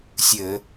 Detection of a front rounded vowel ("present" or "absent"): absent